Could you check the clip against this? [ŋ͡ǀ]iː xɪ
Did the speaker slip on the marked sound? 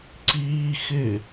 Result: yes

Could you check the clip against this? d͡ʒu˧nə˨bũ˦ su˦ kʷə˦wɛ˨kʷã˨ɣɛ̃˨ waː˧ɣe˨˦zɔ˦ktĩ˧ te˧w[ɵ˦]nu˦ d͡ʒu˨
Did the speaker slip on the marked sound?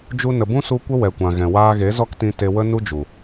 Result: yes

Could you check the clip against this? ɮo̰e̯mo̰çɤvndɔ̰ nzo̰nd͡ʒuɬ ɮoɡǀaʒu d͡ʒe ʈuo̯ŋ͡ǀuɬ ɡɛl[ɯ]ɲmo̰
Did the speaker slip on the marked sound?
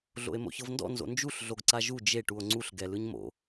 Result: no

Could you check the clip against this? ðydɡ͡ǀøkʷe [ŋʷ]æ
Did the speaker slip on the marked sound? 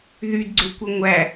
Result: no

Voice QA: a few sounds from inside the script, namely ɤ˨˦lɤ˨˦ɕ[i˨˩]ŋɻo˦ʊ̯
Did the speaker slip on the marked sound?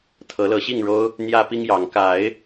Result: yes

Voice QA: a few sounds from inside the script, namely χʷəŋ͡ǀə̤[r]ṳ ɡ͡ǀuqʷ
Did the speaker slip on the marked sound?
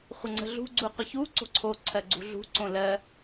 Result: yes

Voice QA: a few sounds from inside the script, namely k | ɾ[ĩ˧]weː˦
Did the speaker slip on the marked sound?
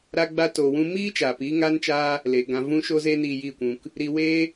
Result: yes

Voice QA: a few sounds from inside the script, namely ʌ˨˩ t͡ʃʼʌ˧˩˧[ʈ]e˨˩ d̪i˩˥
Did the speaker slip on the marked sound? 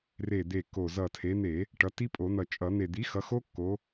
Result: yes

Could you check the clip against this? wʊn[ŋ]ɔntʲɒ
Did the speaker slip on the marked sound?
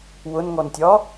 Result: no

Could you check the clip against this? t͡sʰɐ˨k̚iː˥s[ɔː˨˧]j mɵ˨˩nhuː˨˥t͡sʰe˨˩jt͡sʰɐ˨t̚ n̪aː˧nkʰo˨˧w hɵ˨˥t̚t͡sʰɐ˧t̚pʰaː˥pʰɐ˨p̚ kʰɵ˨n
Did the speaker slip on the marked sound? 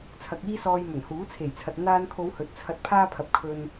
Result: yes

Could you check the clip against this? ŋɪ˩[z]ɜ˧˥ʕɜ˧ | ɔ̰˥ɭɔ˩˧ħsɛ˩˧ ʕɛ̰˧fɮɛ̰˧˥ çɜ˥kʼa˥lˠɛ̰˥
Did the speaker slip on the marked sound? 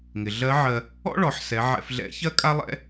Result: yes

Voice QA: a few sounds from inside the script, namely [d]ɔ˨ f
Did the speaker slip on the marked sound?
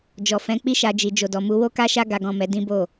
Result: yes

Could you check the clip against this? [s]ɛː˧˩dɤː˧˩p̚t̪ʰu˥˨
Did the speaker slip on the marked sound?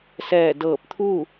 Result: no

